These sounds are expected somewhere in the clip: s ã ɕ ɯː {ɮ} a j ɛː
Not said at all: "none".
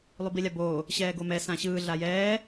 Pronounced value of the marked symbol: ɮ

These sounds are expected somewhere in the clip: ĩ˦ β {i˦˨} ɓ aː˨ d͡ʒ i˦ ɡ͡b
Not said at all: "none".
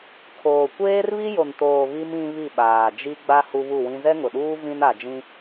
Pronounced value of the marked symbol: i˦˨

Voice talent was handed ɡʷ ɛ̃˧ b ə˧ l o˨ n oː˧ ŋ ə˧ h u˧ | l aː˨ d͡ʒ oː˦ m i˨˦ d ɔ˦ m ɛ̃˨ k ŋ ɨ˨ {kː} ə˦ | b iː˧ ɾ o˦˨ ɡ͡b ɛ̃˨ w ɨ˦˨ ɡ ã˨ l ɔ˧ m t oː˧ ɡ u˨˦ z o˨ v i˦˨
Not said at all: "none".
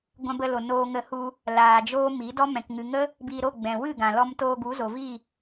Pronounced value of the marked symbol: ŋ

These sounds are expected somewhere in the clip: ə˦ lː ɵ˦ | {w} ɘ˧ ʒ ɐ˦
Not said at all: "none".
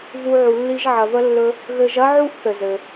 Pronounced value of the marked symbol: ɣ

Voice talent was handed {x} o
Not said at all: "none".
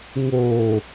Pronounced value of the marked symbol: ŋ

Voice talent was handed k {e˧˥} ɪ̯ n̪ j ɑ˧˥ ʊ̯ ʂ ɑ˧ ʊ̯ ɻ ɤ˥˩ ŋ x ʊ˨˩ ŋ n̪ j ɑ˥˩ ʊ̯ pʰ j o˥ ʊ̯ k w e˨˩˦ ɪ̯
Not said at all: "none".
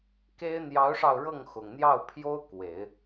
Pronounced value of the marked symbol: e˥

